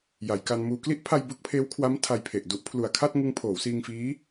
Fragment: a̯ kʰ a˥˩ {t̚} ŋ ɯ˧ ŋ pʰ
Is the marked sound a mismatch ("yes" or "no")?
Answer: no